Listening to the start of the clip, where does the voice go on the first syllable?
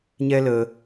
high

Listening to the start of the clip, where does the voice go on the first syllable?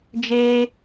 high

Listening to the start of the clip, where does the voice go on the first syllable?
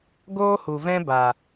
high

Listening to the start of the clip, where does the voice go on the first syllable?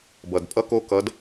low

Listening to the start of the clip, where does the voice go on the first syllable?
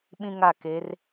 high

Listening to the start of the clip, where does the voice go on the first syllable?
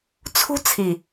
high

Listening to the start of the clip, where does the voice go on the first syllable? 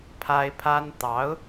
high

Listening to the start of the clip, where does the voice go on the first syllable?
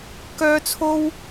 high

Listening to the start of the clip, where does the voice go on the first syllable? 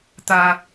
low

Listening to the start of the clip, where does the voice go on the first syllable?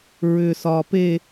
low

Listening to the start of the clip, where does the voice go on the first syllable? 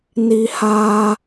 high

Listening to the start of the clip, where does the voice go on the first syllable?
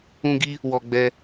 high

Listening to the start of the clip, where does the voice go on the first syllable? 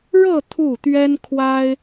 falling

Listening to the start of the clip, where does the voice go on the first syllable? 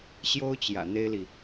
high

